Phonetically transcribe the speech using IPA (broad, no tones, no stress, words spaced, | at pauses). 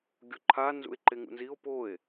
ɡʲoǃʰa nzṵe̯ǃeŋṵnzio̯ poe̯